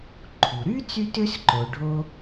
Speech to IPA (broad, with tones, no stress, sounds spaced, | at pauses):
ǃʰ u˩ ɾ y˥ t͡s y˥ t ø˥ s ǃ o˩ ɖʱ o˧